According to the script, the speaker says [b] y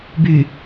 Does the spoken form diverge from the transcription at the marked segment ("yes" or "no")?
no